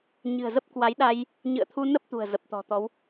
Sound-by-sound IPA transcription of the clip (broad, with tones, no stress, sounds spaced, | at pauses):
ɲ ɨ̤˨˩ ə̯ z ə˦˥ p̚ k w a˨˦ j ɗ a˧ j | ɲ ɨ̰˧˨ ə̯ t̪ʰ u˧ n ə˦˥ p̚ t̪ ṳ˨˩ ə̯ z ə˨˩ p̚ t̪ ɔ̤˨˩ t̪ ɔ˨˦ w